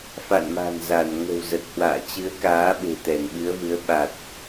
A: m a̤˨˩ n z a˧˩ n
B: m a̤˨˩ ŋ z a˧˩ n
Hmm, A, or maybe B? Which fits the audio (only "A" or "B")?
A